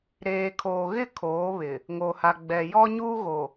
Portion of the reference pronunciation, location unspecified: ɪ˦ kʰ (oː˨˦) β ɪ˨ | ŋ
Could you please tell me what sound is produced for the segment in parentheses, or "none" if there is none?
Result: oː˨˦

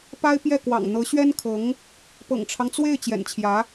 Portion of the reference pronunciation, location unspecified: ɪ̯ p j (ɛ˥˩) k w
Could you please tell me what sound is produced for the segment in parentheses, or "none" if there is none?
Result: ɛ˥˩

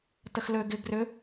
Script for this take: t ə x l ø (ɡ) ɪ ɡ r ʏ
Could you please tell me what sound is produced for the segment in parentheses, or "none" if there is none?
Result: ɡ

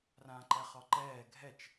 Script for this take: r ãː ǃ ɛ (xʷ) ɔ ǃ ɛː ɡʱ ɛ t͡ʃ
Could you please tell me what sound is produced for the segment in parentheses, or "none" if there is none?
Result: χ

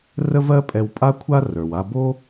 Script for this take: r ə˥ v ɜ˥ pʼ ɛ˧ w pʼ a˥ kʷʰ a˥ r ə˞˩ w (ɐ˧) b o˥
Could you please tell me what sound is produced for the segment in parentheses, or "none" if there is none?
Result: a˧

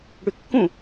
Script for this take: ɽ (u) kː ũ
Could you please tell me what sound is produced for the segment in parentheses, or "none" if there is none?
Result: y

